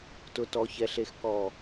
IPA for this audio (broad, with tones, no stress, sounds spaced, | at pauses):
t ʊ˨ t ɔ˨ ç ɛ˨ ɬ e˨ x k ɔ˨